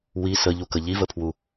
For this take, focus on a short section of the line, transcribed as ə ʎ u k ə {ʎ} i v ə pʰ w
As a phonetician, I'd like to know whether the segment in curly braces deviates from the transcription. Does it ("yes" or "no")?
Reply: no